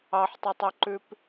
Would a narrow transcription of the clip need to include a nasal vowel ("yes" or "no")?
no